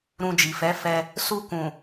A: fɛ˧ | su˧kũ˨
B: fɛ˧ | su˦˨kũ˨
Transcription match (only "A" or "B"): A